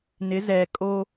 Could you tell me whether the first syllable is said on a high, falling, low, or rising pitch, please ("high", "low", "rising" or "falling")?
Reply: rising